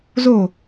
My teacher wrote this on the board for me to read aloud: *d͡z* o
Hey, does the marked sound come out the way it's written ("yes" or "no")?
no